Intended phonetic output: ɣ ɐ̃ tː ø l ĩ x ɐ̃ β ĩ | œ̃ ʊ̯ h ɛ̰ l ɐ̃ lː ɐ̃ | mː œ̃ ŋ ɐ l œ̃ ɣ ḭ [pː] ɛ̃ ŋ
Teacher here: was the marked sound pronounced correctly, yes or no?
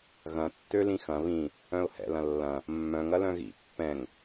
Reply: yes